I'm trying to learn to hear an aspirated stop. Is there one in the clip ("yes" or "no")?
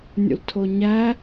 yes